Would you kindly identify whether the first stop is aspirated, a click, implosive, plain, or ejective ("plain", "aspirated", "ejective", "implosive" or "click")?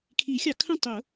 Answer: aspirated